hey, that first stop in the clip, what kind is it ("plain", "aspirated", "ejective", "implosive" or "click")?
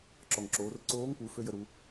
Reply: click